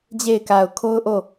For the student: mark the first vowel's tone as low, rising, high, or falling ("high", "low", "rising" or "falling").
falling